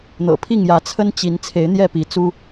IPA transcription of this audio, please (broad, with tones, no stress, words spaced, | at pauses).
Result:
n̪ɤ̰˨˩pʰi˥˨ŋjä˨˦ t͡sʰə˦nt͡ɕi˨˦n t͡sʰe˨˦ɪ̯n̪jɛ˥˨ pi˨˦t͡su˦